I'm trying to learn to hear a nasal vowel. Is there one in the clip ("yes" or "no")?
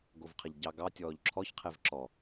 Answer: no